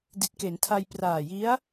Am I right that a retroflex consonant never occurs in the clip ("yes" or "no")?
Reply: yes